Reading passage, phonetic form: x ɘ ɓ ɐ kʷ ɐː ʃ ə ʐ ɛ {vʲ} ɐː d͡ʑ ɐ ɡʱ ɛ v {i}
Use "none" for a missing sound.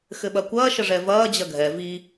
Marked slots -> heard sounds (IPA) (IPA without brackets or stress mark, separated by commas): v, i